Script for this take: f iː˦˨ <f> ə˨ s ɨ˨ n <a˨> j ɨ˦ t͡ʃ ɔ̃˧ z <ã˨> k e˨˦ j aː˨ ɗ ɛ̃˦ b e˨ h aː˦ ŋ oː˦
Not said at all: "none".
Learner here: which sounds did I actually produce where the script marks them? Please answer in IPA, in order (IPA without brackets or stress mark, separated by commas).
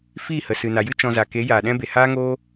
h, a˨, a˨